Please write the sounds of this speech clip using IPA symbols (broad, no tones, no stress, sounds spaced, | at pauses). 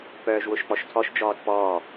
p œː ʒ w ʊ ʃ k͡p ɔ ʃ tʰ ɔ ʃ d͡ʒ ɔː t p ɔː